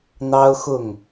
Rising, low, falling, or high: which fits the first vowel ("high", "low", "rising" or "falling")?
high